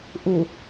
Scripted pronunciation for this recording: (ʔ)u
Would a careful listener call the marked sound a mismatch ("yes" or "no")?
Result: no